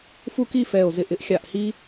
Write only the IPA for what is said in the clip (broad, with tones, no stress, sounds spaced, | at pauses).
f u˥˧ k i˥˧ f ɛ˧˩ o̯ z ɪ˧˩ ʔ ɪ˥ ʔ xʲ a˧˩ ʔ h i˥